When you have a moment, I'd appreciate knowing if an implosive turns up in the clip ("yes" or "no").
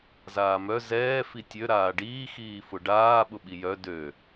yes